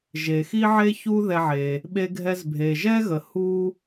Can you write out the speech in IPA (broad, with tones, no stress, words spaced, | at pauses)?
ʒe˩xi˥ ʕe˥ çu˥ ðɛ˧ʕe˩ | ɓe˧ɡʱɛ˧z bʱe˩ʒɛ˥ɣə˩ hu˥